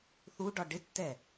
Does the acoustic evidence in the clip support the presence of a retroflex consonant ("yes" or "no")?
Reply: yes